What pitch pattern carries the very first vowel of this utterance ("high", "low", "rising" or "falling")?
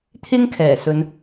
high